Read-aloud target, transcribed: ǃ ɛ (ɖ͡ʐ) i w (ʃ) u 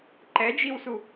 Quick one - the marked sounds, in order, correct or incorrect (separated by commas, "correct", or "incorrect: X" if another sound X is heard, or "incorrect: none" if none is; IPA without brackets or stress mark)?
incorrect: d͡ʒ, incorrect: s